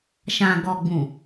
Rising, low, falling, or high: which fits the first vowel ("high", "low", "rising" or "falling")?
low